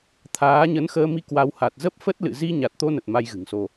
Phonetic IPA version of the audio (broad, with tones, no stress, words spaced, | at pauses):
t̪ʰaː˨˦ɲə˨˦nxəː˧mi˧ kwa˧w ha˨˩t̚ zə˦˥p̚fə˦˥t̚ lɨ̰˧˨zi˧ ɲa˨˩t̚t̪o˧nə˨˩t̚ ma˧jɣɨ̤˨˩ŋso˧